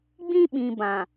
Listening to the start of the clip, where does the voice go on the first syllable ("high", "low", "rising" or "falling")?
high